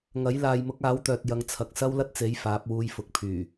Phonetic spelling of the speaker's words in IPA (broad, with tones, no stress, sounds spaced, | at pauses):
ŋ ɐ˨˥ j l aː˨ j m ʊ˨˥ k̚ aː˨˥ w t̪ œː˨ t̚ j ɐ˧ ŋ t͡sʰ ɐ˨ k̚ s ɐ˥ w l ɐ˥ t̚ t͡s e˨˥ j f aː˨˥ p̚ w uː˧ j f ʊ˨˥ k̚ pʰ yː˨˩